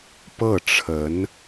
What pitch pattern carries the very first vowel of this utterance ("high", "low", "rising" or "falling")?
falling